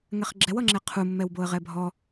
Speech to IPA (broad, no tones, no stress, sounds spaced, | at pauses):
ŋ ɛ χ ɡ͡ǁ ɛ w ʌ ŋ͡ǁ ɛ qʰ u mː ɛ w b o ə̯ ʁ ɛ bʱ ɔ